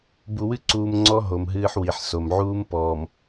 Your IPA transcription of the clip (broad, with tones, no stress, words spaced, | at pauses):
bu˨wɨ˦ ǀuː˨mŋ͡ǀɔ˦ ɦo˨mɦɨː˦ħwi˨ħso˨m ʕuː˦mpɔː˨m